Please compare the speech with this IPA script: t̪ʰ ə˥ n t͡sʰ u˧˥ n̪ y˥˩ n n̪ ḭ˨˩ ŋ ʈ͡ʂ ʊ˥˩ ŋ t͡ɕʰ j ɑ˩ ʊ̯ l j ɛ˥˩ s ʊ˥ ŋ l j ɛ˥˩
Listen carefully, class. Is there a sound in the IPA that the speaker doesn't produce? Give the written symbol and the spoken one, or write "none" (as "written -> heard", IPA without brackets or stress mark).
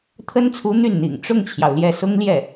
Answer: none